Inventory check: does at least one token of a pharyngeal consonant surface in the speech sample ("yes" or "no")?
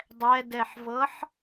yes